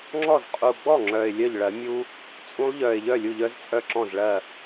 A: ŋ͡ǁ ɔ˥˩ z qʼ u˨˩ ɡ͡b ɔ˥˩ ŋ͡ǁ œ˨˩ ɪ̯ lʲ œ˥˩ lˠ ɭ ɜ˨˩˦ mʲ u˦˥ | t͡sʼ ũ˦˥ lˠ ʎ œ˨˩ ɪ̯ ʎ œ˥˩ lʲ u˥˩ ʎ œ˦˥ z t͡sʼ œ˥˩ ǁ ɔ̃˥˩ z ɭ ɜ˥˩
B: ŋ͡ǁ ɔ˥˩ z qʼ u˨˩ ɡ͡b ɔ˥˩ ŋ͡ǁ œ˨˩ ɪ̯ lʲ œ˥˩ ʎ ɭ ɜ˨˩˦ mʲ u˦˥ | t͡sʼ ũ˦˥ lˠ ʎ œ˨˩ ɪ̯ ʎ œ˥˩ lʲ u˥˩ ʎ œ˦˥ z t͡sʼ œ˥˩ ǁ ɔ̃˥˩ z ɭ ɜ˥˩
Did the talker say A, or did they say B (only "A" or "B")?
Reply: B